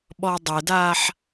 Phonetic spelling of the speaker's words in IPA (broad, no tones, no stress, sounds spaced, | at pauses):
ɓ ɔ dˤ ɘ d aː ħ